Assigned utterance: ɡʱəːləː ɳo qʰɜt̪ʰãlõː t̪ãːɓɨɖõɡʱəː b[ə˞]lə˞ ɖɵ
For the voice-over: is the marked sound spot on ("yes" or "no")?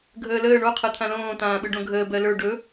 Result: no